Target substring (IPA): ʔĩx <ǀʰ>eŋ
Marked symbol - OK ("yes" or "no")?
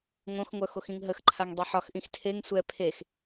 no